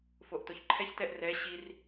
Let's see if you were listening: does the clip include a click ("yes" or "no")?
yes